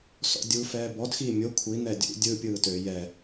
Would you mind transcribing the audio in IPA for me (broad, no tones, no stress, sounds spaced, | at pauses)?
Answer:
s ɔ̰ dʲ u f ɛː b ɔ d x iː mʲ o kʷʰ i n̪ ɛ dʲ ṵ dʲ ɯ pʲ ɯː t ø j ɛ